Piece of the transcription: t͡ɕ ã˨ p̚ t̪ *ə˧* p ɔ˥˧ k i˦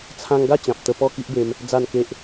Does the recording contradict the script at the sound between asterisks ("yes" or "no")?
no